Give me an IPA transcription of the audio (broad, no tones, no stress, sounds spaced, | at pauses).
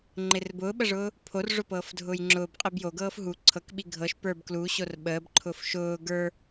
ŋ͡ǃ ɪ r b ʊː ɓ ə ʐ ʊː | pʰ o r ʐ ʊ p ɤː f dʱ ʊː j ŋ͡ǁ ʊː b qʼ i b j o ɡ ɤː f ɦ u ǀʰ ɤ k ɓ i ɡʱ ɤ ʃ p ə˞ b k l u ɕ o r ɓ əː b ǃʰ ʊ f ʃ ʊː ɡ ə˞